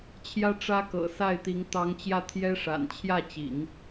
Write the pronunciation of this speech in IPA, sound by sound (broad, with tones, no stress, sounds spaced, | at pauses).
t͡ɕʰ j ä˥ ʈ͡ʂ ä˥ k ɤ̰˨˩ s a˥˩ ɪ̯ t̪ i˧˥ ŋ t̪ ɑ˧˥ ŋ t͡ɕ j ä˥˩ t̪ʰ j ɛ˥ ʂ a̰˨˩ n t͡ɕʰ j ä˥˩ t͡ɕ ḭ˨˩˦ ŋ